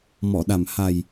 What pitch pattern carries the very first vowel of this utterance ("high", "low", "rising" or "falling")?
low